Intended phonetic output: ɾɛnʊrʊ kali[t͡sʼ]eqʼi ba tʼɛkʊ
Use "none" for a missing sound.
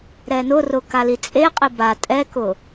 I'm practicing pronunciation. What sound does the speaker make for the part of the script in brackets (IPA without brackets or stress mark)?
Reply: t͡sʼ